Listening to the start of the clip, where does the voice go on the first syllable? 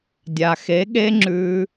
low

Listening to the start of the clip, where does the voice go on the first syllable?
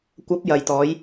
rising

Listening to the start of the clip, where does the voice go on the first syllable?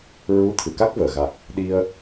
rising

